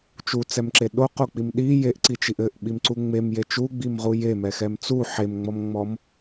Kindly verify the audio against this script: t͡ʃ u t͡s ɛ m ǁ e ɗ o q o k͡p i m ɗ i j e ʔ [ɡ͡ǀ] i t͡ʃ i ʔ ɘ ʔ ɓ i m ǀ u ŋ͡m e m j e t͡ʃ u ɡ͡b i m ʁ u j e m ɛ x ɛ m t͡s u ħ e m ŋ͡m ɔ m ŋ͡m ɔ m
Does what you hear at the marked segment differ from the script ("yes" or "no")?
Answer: yes